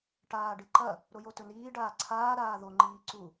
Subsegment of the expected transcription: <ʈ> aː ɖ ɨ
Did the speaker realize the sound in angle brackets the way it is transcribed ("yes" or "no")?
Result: yes